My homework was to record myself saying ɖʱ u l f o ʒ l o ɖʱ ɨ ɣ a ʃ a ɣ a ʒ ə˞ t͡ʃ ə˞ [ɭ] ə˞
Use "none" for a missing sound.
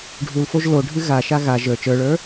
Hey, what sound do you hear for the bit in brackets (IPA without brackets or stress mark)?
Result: ɭ